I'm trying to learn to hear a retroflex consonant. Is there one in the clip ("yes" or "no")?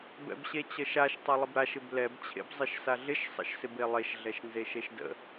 no